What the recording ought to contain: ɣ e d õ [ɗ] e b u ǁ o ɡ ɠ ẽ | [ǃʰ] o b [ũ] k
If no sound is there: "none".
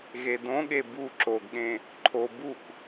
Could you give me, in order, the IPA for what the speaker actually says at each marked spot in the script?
ɠ, ǃʰ, u

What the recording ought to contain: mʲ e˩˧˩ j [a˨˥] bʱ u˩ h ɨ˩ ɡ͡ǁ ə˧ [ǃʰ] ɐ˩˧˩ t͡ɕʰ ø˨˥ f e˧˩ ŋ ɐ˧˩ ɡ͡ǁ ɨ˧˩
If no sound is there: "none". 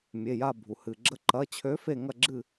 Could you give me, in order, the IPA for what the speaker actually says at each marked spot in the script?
a˧˩, ǃ

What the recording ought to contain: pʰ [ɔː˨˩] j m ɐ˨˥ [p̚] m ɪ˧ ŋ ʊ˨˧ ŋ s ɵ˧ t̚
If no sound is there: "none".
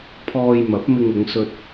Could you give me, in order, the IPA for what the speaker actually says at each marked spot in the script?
ɔː˧, p̚

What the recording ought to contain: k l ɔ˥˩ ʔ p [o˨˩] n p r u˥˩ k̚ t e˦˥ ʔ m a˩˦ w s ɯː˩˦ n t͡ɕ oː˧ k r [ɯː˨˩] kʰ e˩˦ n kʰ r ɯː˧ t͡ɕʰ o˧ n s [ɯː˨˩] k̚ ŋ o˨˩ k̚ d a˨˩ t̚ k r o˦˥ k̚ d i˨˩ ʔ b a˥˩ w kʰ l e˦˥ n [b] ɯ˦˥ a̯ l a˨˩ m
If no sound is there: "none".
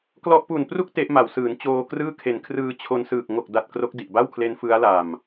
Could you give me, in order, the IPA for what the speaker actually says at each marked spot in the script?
u˨˩, ɯː˥˩, ɯː˨˩, f

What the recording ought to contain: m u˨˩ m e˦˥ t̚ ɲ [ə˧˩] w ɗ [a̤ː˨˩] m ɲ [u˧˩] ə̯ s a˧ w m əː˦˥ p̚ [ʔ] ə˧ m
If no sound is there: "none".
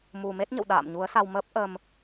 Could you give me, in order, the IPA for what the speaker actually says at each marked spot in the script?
ə̰˧˨, a̰ː˧˨, u˨˦, ʔ

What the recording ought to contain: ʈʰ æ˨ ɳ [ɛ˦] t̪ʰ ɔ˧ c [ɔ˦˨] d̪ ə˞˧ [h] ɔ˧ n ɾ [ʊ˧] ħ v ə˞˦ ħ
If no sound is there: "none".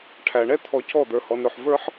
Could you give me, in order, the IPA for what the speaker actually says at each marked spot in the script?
ɛ˦, ɔ˦˨, h, ʊ˧

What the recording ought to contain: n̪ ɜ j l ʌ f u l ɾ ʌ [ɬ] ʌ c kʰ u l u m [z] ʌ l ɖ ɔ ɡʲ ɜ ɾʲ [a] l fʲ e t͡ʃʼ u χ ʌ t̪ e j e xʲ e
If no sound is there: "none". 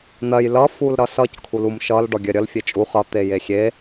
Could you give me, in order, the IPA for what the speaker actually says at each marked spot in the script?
s, ʃ, ʌ

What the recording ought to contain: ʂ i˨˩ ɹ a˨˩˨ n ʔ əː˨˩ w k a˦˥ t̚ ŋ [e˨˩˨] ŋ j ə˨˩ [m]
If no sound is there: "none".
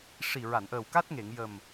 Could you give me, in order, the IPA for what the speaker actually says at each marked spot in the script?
e˨˩˨, m

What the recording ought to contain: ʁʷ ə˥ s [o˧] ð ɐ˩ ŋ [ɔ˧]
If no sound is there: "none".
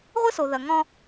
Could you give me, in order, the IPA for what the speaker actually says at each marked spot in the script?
o˩, ɔ̃˧

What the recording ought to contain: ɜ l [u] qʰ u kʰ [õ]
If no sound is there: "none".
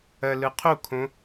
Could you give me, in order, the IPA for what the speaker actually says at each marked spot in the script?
ɯ, õ

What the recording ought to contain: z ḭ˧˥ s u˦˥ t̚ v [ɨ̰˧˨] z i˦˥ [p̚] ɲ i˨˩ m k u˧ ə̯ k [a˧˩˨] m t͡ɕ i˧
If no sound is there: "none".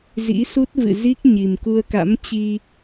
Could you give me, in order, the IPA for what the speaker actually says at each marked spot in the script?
ɨ̰˧˨, k̚, a̰˧˥

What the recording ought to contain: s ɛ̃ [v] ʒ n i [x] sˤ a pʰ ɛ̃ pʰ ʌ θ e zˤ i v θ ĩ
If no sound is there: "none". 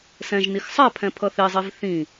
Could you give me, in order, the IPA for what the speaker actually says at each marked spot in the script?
none, x

